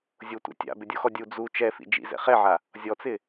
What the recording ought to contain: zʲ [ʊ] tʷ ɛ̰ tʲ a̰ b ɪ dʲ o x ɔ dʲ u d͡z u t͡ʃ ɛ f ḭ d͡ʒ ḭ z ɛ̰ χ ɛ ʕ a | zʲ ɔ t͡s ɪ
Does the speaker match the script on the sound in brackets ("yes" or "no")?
yes